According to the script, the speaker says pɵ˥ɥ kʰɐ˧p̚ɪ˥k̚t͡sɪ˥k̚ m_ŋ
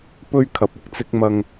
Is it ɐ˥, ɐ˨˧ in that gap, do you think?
ɐ˥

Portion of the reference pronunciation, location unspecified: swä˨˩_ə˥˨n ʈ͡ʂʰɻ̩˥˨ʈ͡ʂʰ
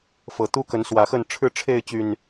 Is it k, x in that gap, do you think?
x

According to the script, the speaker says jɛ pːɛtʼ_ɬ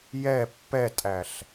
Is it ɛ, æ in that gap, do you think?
æ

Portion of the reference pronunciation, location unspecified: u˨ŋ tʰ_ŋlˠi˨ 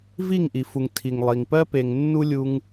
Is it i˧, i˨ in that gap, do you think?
i˨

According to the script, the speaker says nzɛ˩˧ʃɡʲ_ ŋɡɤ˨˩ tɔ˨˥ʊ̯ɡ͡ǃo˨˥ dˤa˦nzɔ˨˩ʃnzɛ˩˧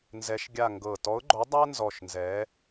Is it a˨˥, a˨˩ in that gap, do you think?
a˨˩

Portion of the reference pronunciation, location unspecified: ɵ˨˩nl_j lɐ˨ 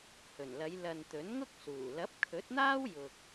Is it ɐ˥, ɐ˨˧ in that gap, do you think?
ɐ˨˧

